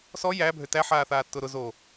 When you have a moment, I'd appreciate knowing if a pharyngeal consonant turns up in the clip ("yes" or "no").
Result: yes